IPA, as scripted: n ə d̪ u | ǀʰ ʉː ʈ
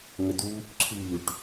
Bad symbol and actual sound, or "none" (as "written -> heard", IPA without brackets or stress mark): n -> ŋ